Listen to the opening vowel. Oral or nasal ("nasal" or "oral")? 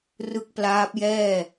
oral